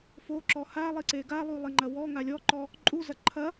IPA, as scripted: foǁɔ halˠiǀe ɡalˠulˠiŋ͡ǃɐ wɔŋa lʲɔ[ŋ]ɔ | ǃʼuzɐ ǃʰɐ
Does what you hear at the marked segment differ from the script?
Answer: yes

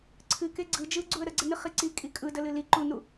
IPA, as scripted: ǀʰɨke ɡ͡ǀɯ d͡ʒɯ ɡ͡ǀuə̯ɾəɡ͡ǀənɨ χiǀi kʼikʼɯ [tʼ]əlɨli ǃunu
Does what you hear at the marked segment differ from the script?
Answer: yes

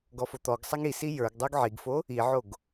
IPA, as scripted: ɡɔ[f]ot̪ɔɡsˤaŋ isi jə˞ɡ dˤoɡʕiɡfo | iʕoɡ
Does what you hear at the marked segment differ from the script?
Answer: no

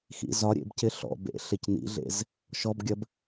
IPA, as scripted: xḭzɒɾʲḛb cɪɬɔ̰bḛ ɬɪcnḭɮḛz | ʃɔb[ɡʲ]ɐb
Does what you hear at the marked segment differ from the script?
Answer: no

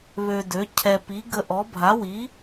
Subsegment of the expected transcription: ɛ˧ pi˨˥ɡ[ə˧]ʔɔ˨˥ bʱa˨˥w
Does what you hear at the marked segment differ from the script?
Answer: no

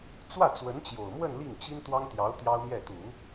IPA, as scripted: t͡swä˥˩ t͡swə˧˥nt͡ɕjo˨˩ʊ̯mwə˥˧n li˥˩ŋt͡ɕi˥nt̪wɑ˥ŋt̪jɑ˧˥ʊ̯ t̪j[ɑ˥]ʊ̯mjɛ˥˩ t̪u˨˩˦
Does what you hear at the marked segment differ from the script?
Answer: no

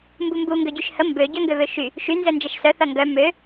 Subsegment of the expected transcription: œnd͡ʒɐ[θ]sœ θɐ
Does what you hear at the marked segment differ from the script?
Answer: yes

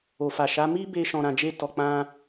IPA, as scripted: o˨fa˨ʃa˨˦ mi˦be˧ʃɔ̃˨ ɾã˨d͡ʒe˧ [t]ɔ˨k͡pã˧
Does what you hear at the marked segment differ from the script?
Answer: no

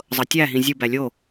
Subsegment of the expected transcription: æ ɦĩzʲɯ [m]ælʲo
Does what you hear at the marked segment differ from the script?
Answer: yes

